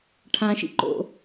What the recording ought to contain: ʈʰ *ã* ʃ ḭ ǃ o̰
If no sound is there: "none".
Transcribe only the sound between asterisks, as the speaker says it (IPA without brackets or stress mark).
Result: ã